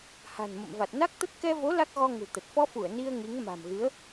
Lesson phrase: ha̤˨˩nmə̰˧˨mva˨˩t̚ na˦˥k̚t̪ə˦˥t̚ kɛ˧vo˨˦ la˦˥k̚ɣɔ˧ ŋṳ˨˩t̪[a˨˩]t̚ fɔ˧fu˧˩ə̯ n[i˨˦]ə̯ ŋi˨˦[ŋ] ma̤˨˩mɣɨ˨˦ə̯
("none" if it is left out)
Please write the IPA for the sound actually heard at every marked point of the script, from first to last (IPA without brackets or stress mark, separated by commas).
ə˨˩, i˧, ŋ